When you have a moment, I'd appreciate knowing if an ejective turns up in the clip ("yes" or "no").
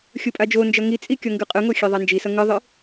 yes